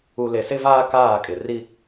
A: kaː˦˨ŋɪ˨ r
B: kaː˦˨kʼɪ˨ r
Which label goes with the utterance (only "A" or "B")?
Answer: B